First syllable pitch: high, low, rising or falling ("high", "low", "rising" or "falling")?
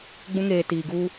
high